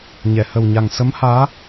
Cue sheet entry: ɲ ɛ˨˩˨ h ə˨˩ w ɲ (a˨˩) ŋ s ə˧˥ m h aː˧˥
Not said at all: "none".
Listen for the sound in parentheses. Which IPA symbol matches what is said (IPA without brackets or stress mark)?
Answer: a˨˩